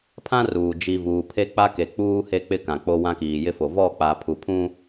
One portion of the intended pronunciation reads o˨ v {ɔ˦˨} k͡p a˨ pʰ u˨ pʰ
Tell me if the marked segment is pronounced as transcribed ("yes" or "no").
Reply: yes